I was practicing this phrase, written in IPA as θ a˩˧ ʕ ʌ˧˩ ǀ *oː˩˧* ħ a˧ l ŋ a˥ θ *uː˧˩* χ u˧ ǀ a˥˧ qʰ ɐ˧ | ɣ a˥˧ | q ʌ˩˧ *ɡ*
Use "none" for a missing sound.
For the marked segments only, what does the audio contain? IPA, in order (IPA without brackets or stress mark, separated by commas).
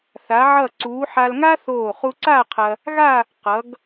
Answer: uː˩˧, oː˧˩, ɡ